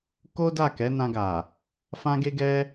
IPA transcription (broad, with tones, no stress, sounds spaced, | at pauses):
k o˦ d a˦˨ k ɛ˨˦ n ã˧ ɡ a˨ | f ã˦ ɡ e˦ ɡ ɛ˦